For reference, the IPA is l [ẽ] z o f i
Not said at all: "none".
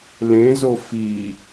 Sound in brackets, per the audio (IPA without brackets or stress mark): ẽ